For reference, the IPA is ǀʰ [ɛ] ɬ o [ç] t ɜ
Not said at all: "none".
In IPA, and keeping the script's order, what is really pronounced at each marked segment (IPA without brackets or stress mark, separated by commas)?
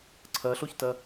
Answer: ɜ, ç